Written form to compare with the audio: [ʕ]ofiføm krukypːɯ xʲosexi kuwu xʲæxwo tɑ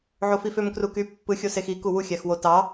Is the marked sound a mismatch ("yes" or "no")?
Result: no